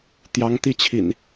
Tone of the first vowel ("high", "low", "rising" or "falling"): rising